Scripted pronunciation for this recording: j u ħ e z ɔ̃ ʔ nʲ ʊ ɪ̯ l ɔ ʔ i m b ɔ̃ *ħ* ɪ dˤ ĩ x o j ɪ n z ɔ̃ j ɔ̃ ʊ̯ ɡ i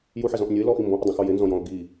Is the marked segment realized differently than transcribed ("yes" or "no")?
yes